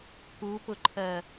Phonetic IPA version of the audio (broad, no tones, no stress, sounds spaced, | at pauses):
k u p ʊ ǃʰ ɜ